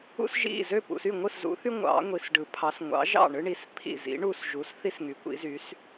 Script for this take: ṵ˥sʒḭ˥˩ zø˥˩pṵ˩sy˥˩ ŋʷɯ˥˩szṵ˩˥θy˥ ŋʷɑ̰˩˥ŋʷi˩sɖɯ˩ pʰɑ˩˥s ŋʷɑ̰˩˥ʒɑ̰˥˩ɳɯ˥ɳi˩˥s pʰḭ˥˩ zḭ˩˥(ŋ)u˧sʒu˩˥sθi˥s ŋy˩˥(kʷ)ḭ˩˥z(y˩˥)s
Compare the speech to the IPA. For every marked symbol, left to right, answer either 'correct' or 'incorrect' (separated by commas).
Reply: incorrect, correct, correct